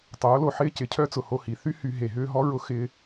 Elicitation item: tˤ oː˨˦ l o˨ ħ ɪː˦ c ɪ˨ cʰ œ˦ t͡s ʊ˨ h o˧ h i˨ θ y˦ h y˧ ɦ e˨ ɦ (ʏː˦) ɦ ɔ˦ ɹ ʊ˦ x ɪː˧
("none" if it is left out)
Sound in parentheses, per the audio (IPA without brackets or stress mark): ʏː˦